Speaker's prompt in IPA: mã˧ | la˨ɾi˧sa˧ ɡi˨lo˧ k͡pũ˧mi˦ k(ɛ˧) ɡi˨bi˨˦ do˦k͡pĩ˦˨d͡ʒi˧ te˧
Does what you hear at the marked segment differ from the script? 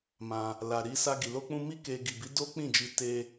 yes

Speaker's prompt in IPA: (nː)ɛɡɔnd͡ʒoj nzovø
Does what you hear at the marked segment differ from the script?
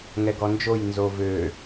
yes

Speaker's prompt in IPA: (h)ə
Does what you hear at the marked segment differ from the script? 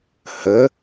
no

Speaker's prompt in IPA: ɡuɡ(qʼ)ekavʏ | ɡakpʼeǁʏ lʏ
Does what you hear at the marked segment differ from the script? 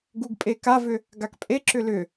yes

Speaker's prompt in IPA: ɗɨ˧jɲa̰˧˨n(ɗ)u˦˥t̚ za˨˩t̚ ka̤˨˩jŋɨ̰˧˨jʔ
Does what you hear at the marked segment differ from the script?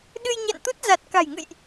yes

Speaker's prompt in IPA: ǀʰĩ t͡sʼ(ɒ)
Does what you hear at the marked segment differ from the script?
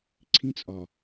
no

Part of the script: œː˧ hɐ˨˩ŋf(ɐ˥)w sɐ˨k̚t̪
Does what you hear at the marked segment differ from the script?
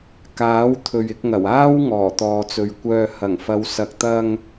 yes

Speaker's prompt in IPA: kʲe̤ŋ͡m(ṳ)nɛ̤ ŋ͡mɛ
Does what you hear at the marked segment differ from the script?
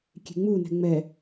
yes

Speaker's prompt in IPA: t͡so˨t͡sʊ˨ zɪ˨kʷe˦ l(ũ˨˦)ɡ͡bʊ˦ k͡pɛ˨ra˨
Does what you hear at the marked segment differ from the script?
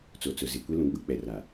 no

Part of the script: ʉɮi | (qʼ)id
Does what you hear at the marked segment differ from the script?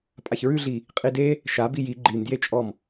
no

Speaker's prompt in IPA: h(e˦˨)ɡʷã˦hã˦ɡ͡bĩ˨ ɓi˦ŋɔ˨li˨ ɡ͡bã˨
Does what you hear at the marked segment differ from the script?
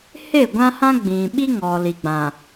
no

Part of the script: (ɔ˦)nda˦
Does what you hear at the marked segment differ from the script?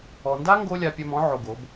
yes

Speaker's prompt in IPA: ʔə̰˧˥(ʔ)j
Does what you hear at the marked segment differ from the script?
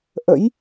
yes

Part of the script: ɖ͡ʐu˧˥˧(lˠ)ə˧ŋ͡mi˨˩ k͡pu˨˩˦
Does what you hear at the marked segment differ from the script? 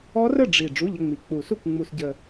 yes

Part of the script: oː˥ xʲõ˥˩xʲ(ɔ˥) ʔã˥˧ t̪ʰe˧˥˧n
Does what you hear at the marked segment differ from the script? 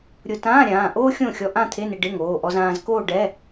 yes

